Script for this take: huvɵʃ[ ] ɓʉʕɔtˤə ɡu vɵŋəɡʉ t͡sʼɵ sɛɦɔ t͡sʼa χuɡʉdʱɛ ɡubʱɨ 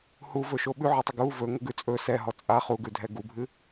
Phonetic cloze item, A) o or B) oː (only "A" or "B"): A